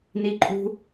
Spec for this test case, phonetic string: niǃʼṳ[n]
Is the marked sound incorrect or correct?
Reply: incorrect: none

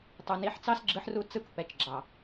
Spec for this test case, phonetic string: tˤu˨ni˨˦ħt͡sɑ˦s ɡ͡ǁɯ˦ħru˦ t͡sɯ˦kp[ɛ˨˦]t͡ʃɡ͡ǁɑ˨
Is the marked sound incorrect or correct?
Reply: correct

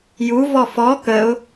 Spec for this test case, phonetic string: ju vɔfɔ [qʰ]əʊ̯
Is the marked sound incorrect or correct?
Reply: incorrect: k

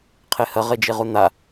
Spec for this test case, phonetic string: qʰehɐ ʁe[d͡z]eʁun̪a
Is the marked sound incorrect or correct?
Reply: incorrect: d͡ʒ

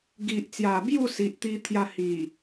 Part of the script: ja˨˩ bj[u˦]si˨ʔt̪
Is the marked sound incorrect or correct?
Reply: incorrect: u˥˧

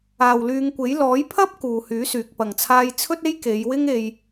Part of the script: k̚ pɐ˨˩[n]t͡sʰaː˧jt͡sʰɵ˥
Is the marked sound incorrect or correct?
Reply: incorrect: ŋ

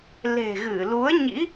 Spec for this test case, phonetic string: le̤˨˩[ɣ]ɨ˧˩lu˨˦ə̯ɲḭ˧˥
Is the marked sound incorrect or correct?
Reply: correct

